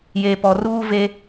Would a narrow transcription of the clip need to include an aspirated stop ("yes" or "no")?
no